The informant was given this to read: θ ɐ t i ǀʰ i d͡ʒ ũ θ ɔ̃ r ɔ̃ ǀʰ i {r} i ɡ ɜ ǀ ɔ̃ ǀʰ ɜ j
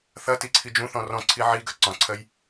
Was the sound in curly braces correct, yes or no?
no